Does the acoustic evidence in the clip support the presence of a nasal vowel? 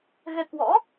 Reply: no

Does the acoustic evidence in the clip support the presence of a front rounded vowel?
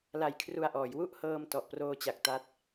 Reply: no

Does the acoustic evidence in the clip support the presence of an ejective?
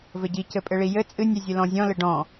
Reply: yes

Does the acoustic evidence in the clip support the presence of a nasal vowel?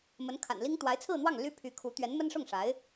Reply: no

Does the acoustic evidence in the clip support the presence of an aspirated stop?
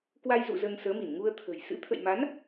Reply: yes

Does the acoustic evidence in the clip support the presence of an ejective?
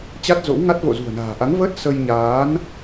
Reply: no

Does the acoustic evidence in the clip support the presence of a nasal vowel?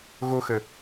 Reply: no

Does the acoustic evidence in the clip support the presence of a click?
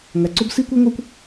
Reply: yes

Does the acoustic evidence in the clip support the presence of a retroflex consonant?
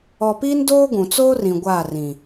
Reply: no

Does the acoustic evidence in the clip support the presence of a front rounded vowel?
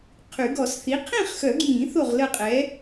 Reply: yes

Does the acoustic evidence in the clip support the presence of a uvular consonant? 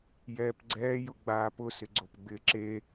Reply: no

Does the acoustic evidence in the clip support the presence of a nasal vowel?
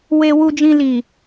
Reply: yes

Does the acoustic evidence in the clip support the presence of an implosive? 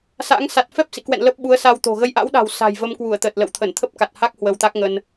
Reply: yes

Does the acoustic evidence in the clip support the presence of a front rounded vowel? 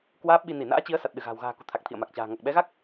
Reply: no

